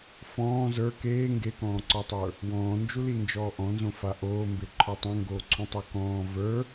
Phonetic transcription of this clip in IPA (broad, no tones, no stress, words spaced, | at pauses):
fɔ̃ː zə˞ keː ŋɡekɔ̃ːǀɔtˤə˞ | wɔ̃ːnd͡ʒulind͡ʒɔː ʔɔ̃nzõfa ʔoːmbeǃʰɔ tˤõŋɡoːǀʰũtˤə˞ kɔ̃ː və˞